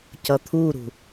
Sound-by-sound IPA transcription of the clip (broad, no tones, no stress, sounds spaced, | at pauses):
c ʌ t̪ʰ u ɾ ṳ